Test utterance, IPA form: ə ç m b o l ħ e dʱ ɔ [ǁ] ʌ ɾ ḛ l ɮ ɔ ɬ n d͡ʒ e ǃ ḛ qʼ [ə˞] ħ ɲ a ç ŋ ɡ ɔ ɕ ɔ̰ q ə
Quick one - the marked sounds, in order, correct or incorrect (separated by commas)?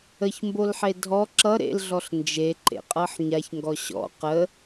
correct, incorrect